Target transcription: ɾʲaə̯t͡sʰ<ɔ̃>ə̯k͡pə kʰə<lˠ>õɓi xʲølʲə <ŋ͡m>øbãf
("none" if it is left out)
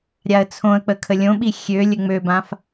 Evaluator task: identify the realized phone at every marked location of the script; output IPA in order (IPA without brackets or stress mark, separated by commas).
õ, lʲ, ŋ͡m